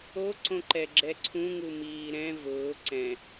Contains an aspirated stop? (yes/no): yes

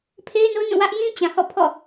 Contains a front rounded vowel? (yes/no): no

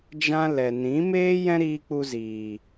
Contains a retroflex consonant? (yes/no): no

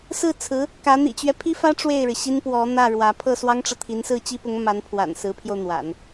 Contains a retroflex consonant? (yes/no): yes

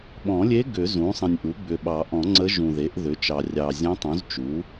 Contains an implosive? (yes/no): yes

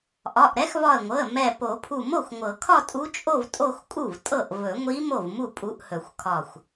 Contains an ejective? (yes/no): yes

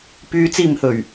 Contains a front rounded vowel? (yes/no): yes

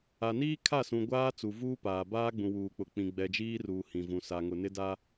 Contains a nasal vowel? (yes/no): yes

